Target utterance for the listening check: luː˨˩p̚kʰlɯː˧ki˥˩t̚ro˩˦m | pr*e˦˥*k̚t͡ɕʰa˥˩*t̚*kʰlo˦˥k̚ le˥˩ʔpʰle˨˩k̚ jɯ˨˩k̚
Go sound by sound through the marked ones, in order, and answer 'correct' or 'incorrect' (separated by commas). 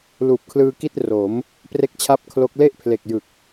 incorrect, incorrect